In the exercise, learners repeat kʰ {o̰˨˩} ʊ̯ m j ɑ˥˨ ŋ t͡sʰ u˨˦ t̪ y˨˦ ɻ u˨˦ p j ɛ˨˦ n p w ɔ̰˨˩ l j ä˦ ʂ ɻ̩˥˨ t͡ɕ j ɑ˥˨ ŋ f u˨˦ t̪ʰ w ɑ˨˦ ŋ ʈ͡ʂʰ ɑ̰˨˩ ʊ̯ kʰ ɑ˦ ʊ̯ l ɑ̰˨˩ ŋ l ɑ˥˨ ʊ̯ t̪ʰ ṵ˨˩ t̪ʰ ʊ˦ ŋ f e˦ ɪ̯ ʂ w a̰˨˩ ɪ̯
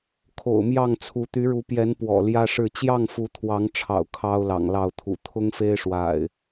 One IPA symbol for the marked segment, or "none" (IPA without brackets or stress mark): o̰˨˩